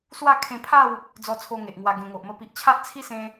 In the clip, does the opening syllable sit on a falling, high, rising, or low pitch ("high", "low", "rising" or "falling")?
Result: falling